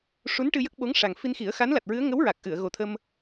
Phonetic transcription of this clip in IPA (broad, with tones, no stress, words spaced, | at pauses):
ʂu˧˥nʈɨ˧jə˦˥k̚ ɓo˧˥ŋʂa˨˩ŋ fi˧nxi˨˩˦ə̯ xa˧˥nla˨˩t̚ɹɨ˧˥ə̯ ŋə˧˥wɹa˨˩k̚ʔɨ˨˩˨ə̯ ɣo˨˩t̪ʰə˧m